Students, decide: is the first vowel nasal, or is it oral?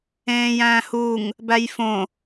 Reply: nasal